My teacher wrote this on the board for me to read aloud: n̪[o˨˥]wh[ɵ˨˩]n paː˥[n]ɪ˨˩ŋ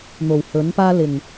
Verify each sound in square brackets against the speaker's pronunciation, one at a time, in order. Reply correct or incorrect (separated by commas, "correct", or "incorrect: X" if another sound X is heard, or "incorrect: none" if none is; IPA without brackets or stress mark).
incorrect: o˨˩, incorrect: ɵ˨˥, incorrect: l